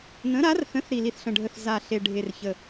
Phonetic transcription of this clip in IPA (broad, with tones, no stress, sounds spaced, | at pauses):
n ə̃˨˥ ɾ a˨˥ r θ ə̃˨˥ θ ɾ i˨˩ l i˨˩ θ ɬ ə̃˨˩ ɖʱ ə˨˩ θ z a˨˩ ɬ e˨˩ ɖʱ e˨˩ r ç ə˨˩